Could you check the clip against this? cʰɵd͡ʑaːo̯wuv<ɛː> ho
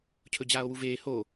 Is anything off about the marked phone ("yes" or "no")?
yes